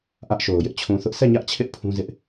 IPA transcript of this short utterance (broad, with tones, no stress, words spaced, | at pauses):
ʔä˦ʔʃo˨ʊ̯ jɪ˦ʔt͡ɕʰũ˨θʊ˦ʔ sʰɛ˦˨ɲä˦ʔt͡ɕʰɪ˦ʔ pʰũ˦zɪ˦ʔ